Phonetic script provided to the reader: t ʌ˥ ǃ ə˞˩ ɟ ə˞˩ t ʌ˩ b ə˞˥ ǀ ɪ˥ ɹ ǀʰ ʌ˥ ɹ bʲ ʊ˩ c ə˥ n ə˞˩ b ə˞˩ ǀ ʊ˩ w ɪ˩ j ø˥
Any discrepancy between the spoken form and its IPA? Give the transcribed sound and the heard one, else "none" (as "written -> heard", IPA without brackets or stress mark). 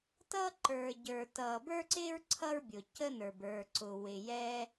ø˥ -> ɛ˥